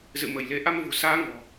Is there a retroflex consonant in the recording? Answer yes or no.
no